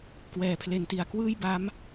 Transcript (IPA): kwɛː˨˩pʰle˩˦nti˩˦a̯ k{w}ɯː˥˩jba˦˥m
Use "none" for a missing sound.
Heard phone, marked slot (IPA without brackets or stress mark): w